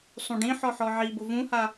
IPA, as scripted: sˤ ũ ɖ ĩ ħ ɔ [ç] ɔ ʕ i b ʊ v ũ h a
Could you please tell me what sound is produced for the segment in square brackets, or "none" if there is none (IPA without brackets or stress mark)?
ħ